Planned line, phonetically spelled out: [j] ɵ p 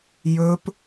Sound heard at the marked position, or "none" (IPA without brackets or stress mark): j